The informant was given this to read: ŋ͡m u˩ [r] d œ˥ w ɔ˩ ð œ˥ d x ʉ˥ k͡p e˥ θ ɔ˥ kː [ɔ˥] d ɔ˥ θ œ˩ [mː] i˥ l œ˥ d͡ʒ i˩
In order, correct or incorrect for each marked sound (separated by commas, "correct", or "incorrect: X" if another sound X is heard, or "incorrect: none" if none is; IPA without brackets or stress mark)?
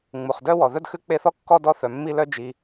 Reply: incorrect: χ, correct, correct